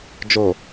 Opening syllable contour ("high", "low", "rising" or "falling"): low